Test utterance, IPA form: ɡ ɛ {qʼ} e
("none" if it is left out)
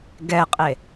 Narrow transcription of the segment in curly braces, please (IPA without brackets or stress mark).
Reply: qʼ